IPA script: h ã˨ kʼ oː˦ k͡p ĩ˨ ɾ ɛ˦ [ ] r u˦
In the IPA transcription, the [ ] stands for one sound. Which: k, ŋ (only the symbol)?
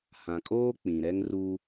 ŋ